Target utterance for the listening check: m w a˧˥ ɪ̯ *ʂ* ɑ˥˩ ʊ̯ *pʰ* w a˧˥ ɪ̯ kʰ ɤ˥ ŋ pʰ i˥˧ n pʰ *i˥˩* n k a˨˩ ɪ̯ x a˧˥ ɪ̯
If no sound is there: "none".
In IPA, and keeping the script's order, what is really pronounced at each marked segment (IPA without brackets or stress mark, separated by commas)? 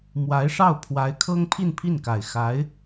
ʂ, pʰ, i˥˩